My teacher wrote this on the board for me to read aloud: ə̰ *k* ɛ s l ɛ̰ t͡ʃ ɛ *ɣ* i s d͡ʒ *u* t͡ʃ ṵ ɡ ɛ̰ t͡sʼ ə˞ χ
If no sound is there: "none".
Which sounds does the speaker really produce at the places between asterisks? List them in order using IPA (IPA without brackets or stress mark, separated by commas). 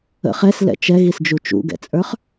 χ, ɣ, u